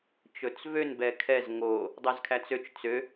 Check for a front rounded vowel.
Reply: present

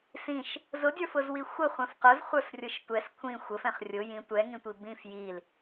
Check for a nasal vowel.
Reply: present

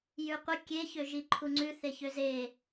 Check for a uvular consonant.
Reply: present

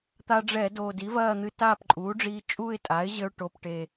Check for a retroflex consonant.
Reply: present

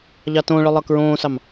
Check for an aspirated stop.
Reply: absent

